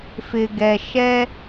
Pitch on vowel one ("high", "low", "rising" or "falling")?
low